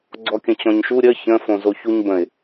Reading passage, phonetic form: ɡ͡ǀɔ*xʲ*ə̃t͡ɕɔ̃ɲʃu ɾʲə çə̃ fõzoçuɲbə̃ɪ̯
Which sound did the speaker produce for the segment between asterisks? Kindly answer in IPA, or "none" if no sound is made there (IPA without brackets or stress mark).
kʲ